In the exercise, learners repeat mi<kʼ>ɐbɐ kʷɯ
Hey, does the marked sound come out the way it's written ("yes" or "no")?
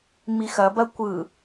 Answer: no